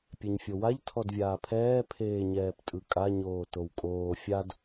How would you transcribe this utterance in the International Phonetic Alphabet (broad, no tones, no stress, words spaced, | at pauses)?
pʲeɲfʲowaʎ tʰɔdvʲaːpʰɛː pʰeːɲɛːptʼɯkʼa ɲoːtowkʼoː fʲad